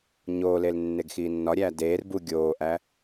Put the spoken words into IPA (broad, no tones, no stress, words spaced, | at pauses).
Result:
ɲoːlel nːeɡxiːnːɒɾʲæː deːr bu ɡʲoːʔæ